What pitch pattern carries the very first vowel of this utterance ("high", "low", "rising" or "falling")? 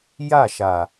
falling